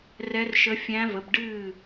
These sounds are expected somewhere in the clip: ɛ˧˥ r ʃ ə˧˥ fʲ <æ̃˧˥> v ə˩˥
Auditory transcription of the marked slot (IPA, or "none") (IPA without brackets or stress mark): æ̃˧˥